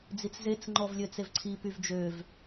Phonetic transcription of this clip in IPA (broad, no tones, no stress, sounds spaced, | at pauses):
d͡z i t͡s z e t͡s ŋ͡ǃ ɔ v lʲ ø t͡s e v ǀʰ i p y v d͡ʒ ø v